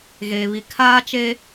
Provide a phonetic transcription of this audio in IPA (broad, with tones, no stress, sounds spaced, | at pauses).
ɣ eː˨ β i˨ kʰ aː˦ t͡ʃ e˦